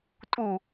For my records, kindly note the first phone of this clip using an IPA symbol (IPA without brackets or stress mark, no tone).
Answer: tʼ